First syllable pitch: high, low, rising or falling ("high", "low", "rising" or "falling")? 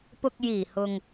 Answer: low